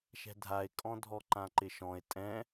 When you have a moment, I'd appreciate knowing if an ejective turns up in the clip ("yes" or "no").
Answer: yes